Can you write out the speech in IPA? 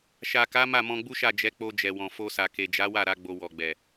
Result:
ʃa˨ka˨˦ ma˦˨mɔ̃˧ɡ͡bu˦ʃa˦˨ d͡ʒɛ˨˦k͡po˧ d͡ʒɛ˨ wɔ̃˨ fo˧sa˨ ke˨d͡ʒa˨˦wa˦˨ ɾa˧ɡ͡bo˨ wɔ˨ɡ͡bɛ˨

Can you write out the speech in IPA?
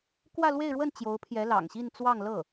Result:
kwä˥˧lwe˥˧ɪ̯ɻwə˥˩n t͡ɕjo˧˥ʊ̯pʰjɛ˧˥lɑ̰˨˩ŋɕi˥˧n t͡swɑ˥˧ŋlɤ˥˩

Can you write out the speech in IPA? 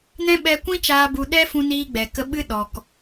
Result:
nɛ̃˦ɓɛ˧kʷĩ˦t͡ʃaː˧ bu˧ ɗɛ˦fũ˧niː˧ ɡ͡bɛ˨kə˧ ɓɨ˦ɗɔ˨k

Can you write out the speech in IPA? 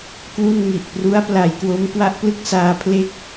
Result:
kwu˥˩nŋi˨˩ʔ pru˦˥a̯pla˩˦jkwo˦˥mkwa˦˥ʔ plɯ˥˩k̚saː˧pʰle˥˩k̚

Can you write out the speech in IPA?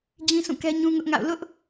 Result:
d͡ʑĩ˦sũ˦˨kɛ˦ ɲũ˦ŋʊ˦ʔŋa̰˦˨ʊ̯ lʊ˦ʔ

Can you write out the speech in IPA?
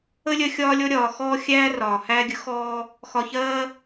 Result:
ə˦lʲɜ˧ xʲɒː˧lʲɔ˧ ɾʲɒː˨xɔː˧ xʲæː˦rɒː˨ hæː˧ɡʲə˨˦xɔː˧ | xɒ˨çɜː˧

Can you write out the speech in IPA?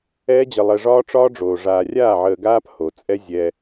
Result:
ɛː˦d͡ʑə˧lˠɛ˧ ʐɒː˦ʈ͡ʂɒː˦ɖ͡ʐoː˨ ʐaː˨rʲaː˦˨ ʕəː˧ɡaː˦p ho˨t͡sʼɛ˦ zʲɛ˧

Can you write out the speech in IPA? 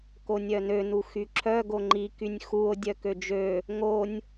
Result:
konʲœnø nuxyǁʰœ ɡoŋ͡ǃi kynʲxuo̯ dʲœkød͡ʒø | ŋonʲ

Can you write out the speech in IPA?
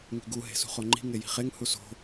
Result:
ŋi̤ɡu ɦe̤sṳχoŋ͡ǃi̤ ŋeji̤χeŋ huso̤

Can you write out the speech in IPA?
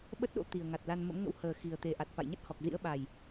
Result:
ɓə˦˥t̚ɗo̰˧˥ t̪i˨˩ə̯ŋa˨˩t̚la˧n mə̰˧˥mŋə̰˧˥w həː˨˩ xi˨˩ə̯ t̪e˨˩ʔa˨˩t̚fa̰˧˨jɲə˦˥t̚ hɔ˨˩k̚zḭ˧˥ə̯ɓa˨˩j

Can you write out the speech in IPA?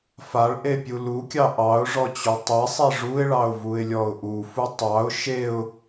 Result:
faɭʔepʲu lukʲɑ ʔɑʊ̯ʐɔt͡ɕu tˤesˤe ʐuɪ̯ɭɑʊ̯vuɪ̯lʲɔʊ̯ ʔufu tˤɑʊ̯ ʃeʊ̯

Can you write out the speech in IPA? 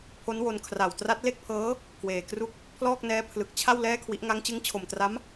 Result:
pʰo˦˥nwo˧n kʰra˨˩wtra˦˥t̚le˥˩k̚pʰɤː˦˥ | kweː˨˩kru˥˩k̚ | pʰlɔː˥˩k̚nɛː˦˥pʰlɯ˨˩k̚ t͡ɕʰa˥˩w lɛː˥˩kʰwi˦˥ʔ ŋa˦˥ŋt͡ɕɯ˦˥ŋt͡ɕʰo˨˩mtra˦˥m

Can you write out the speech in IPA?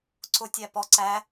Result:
ǀʊ tʲæpɔ ǀæ

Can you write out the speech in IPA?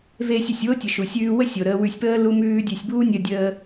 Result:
veː˧sʲə˩sʲwo˥tʲə˩ ʃu˩sʲʉː˧ wə˥sʲo˩ ɾəː˧wʉ˧sʲpəː˥ lu˥mʉː˥dʲʉ˧sʲ buː˥nʲəː˧dʲəː˧

